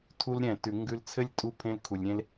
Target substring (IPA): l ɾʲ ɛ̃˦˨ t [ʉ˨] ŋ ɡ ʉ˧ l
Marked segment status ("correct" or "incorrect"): correct